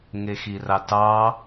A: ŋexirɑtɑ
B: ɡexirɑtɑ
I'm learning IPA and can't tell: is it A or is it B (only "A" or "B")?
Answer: A